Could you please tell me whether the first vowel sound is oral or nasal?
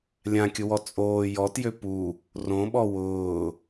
nasal